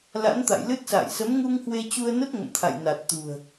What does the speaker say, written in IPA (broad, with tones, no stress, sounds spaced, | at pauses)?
l a̰˧˥ n t̪ a̰˧˨ j l ɨ˦˥ t̚ s a̰ː˧˨ j s ə˨˦ m ŋ u˧ ŋ h w e˧ t͡ɕ u˧ ə̯ n ə˦˥ t̚ ŋ ə̰˧˨ m t̪ʰ a̰˧˨ j n a˨˩ t̚ t̪ ṳ˨˩ ə̯